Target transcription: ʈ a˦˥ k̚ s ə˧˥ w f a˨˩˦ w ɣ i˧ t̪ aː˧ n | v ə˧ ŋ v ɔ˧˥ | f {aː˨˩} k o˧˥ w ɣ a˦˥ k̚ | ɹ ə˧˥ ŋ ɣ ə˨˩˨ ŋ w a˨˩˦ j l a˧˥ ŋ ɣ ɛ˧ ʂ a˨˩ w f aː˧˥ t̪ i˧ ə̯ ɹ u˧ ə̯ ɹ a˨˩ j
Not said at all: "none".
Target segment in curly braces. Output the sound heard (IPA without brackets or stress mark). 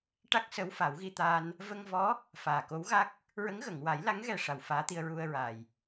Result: aː˨˩